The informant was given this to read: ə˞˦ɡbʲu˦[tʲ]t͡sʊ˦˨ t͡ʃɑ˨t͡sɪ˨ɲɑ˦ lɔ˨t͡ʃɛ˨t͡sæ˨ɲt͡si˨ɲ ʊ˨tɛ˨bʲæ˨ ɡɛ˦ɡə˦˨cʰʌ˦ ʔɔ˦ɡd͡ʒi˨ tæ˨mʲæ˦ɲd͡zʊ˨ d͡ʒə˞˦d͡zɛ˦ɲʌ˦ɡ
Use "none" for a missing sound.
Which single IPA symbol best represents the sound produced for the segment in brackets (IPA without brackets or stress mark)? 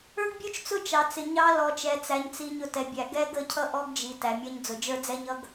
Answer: t͡ʃ